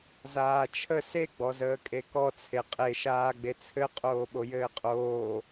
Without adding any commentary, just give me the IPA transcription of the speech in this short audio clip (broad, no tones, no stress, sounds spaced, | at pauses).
z aː t͡ʃʰ ə s e ɡ͡b ɔ z əː kʼ e k ɔ t͡sʰ e qʼ e ʃ aː ɡ͡b e t͡sʰ ɘ qʼ oː ɓ o j ɘː qʼ oː